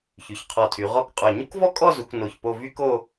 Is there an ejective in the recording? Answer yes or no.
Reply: yes